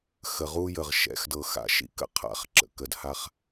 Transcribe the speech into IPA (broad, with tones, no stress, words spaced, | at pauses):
xə˨ʁu˦ jə˨ʁ ʃɛ̰˨˦xdɤ˨xa̰˨˦ ʃḭ˦kə̰˦qʰa̰˨˦χ ǁə̰˨kə˨dha˦χ